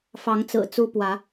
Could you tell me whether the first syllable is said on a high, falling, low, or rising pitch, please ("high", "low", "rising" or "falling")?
rising